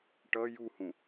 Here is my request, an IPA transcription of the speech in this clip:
ʈ ʌ j u h ũ

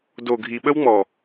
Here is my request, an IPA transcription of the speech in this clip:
d o˨ ɡʱ i˨ ɓ ə˦ w ŋ͡m ɔ˨

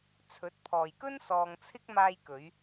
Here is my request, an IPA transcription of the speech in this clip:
t͡sʰ ɵ˨˥ t̚ pʰ ɔː˨ j k ɵ˥ n s ɔː˧ ŋ t͡sʰ ɪ˥ k̚ m aː˧ j k ɵ˨˧ ɥ

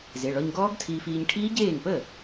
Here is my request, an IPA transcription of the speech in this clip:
z e˩˧˩ ɭ ɔ˧ ɲ ɡ ɔː˦˥ ɡ tʰ iː˧ f iː˧ ɲ ʈʰ iː˦˥ ɟ eː˥˩ ŋ p ə˥˩

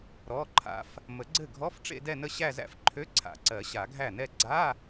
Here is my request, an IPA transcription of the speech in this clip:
ɾ ɔ˧˥˧ ǃʰ a̰˦˥ f | m ə˨˩˦ ɡ͡ǀ ɘ˥˩ ɡʱ ɔ˧˥˧ f ʈ͡ʂ ḛ˥˧ d ɛ˥˧ n ə˥˧ ɕ æ˥˧ z æ̰˥˧ f ǃʰ ø˧˥˧ ǀʰ a̰˨˩˦ ǀ ɜ˨˩˦ ɕ a˨˩˦ ɡʱ æ˥˩ n ɛ˥˧ ɡ͡ǀ a˧˥˧

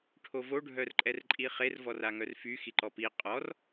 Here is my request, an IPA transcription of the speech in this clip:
ʈʰ o v o ɖʱ œ r ǃʼ ɛ r ǃʼ i χ e r v ɔ r a ŋ œ r f y x i ǃ ɔ p i qʼ ɔ r

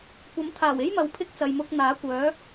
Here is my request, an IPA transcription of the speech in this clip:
kʷ ɐ˨˥ m t̪ʰ aː˨˩ w e˥ j m ɐ˨ w pʰ ɪ˥ k̚ t͡s ɐ˨ j m ʊ˧ k̚ n̪ aː˨˥ kʷ œː˨˥

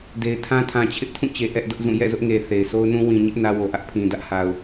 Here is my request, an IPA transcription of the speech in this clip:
d e˨ ɪ̯ tʰ ã˦ tʰ ã˨ t͡ɕʰ ɪ˦ ʔ tʰ ũ˦˨ t͡ɕ e˨ ʔ ɛ˦ ʔ d ʊ˦ ʔ z ũ˦˨ j ɛ̰˦˨ z ʊ˦ ʔ ŋ e˨ θ e˨ ɪ̯ sʰ o˦ ʊ̯ n ũ˦ w ĩ˨ ɲ ɪ˦ ʔ n ä˦ w o˨ ʔ ä˦ ʔ pʰ ĩ˨ d ä˦ ʔ h a˨ ʊ̯

